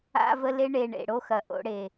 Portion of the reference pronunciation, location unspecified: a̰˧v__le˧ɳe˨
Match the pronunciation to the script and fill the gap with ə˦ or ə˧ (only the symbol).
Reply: ə˧